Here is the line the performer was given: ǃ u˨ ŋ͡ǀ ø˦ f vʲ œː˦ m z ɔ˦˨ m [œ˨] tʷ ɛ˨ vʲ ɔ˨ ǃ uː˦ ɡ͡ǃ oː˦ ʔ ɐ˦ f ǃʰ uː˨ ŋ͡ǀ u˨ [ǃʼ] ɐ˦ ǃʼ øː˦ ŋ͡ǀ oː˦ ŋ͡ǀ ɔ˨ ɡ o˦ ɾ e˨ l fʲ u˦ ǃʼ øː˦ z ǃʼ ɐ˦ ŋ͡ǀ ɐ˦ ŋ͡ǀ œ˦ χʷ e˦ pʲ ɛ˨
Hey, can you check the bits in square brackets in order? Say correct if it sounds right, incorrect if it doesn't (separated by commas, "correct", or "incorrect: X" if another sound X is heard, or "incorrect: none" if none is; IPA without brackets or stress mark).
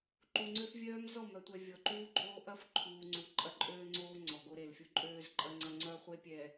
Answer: correct, correct